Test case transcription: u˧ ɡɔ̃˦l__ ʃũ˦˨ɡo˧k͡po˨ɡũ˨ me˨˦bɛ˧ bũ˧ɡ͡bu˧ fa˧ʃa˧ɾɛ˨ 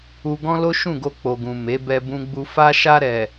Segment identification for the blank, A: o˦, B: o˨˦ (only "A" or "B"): A